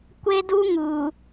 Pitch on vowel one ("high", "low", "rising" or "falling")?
high